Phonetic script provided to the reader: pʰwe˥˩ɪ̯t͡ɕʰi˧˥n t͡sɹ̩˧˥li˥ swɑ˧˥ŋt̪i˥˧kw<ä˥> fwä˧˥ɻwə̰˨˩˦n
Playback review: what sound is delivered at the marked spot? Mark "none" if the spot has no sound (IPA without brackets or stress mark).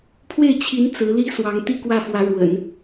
ä˥˩